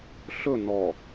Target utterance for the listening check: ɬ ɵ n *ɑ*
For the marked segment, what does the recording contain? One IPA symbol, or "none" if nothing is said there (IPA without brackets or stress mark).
ɔ